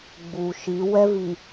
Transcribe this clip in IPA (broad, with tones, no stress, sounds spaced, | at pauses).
ɡ͡b u˨ ʃ i˨˦ w ɛ˦ v i˨